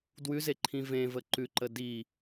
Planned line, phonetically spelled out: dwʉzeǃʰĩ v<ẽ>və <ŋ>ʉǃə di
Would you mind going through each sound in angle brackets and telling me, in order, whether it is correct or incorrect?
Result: correct, incorrect: ǃ

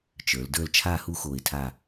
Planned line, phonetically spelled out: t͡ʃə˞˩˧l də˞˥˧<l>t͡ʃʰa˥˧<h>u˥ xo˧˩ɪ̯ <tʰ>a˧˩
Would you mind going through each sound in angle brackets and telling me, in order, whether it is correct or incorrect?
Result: correct, correct, correct

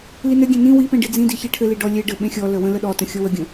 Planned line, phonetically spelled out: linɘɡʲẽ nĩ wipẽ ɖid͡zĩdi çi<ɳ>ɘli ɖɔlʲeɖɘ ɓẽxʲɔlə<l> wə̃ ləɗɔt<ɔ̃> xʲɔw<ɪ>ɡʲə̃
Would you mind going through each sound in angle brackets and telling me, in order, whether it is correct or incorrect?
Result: incorrect: ʈʰ, incorrect: none, incorrect: ə̃, incorrect: ə

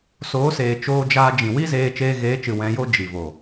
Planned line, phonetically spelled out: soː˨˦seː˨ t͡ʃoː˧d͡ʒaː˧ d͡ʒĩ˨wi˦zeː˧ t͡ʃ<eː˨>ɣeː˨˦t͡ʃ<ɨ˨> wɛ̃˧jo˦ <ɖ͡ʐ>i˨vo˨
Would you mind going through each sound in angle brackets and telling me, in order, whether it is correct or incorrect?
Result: incorrect: eː˧, correct, incorrect: d͡ʒ

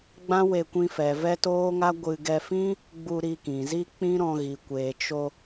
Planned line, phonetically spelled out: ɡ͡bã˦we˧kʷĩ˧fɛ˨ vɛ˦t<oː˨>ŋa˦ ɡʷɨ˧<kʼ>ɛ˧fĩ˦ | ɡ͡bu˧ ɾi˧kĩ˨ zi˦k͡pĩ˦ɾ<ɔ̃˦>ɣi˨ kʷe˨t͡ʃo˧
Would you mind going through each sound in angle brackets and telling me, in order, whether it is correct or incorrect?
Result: incorrect: oː˦, incorrect: ɡ, incorrect: ɔ̃˧

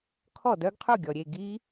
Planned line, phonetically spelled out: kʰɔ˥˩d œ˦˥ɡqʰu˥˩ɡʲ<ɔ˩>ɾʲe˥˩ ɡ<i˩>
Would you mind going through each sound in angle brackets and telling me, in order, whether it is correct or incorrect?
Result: correct, incorrect: i˦˥

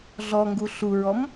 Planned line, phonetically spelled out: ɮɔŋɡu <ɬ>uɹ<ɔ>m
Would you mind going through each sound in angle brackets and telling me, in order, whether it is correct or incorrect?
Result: correct, correct

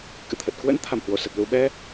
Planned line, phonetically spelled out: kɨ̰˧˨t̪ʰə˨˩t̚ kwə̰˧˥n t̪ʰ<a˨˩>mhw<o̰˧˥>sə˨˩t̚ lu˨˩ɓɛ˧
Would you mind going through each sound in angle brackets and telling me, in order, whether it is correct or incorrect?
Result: incorrect: a˧˩, incorrect: o˧˩

